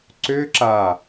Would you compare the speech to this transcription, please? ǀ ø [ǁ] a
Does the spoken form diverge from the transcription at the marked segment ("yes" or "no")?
no